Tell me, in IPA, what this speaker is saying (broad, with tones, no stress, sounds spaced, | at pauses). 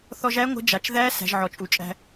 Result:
θ ɔ˧ ʒ æ˧˥ ŋʷ ə̤˧˥ d͡ʒ a˩ t͡ʃ ð æ˧˥ s æ̤˩˧ ʒ ʕ ɔ˩ t͡ʃʼ u˩ t͡ʃʼ æ̤˧